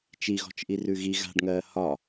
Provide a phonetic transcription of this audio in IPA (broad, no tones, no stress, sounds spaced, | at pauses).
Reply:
t͡ʃ i ɣ ɔ̤ t͡ʃ ʔ i r ʉ ɣ i ɣ a̤ ɖ ŋ ɜː h ɒ